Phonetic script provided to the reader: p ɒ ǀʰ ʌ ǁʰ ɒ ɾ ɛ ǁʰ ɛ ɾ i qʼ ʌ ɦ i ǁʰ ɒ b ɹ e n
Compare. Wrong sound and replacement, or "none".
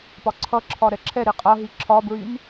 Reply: e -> y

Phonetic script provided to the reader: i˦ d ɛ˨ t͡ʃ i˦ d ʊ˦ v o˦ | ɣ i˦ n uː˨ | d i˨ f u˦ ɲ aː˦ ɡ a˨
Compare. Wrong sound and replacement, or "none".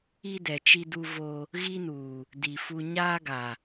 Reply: ʊ˦ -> u˦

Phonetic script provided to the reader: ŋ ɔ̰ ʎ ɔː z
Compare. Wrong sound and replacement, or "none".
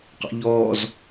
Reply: ŋ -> q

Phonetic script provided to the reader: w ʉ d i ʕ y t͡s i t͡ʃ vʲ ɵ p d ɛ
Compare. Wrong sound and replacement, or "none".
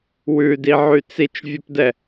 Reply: none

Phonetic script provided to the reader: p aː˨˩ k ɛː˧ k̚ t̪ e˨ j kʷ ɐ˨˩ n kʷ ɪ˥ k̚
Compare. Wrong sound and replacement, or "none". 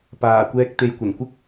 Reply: k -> kʷ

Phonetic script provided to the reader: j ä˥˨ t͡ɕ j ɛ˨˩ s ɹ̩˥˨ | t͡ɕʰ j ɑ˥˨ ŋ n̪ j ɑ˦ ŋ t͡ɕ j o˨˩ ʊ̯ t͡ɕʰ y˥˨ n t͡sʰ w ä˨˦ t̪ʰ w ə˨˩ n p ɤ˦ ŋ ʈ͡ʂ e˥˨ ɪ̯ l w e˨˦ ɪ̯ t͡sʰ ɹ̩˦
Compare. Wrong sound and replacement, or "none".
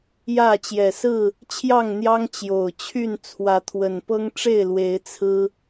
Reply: none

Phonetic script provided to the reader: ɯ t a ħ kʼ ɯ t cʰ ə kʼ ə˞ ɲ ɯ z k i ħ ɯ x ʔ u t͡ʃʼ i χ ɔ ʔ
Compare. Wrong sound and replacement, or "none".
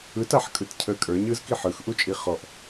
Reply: none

